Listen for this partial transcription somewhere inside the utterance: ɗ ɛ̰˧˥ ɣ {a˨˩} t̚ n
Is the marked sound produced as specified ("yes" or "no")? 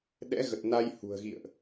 no